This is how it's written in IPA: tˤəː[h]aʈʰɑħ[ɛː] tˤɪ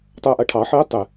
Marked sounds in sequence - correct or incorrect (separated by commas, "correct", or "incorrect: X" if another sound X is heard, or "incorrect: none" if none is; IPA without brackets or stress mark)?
incorrect: ʔ, incorrect: ɪː